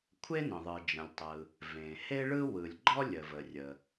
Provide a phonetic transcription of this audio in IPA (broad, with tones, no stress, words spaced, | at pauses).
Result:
kʷʰe˥nə̃˩ðˤɯ˩d͡ʒə̃˩lʲ tˤɯ˩ | vẽ˩he˥ɭɯ˥ wɯ˩lʲɡ͡ǃɔ˥ lʲə˩və˩ rʲə˩